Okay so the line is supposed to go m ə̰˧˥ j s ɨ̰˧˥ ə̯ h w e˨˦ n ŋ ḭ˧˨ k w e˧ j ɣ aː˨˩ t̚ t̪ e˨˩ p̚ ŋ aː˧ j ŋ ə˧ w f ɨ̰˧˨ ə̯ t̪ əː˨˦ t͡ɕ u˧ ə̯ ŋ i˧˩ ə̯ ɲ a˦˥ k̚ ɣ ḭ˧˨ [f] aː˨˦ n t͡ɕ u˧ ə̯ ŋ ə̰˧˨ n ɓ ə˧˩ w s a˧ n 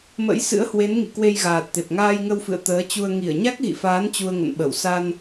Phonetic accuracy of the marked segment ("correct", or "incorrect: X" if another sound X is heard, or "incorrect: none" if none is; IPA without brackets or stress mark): correct